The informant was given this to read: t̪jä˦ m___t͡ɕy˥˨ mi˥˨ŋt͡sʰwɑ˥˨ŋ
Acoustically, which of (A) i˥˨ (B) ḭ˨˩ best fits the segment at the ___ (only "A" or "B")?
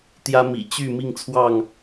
B